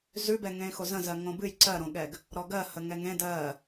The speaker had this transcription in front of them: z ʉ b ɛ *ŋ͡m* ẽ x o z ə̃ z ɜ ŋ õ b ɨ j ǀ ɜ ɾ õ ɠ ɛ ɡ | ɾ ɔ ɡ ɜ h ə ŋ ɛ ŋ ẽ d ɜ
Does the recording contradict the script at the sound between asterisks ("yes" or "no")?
yes